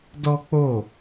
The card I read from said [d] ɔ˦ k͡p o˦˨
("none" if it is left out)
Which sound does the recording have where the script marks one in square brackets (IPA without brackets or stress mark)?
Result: d